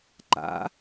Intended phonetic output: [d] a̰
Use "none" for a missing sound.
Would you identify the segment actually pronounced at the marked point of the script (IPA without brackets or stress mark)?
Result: ǃ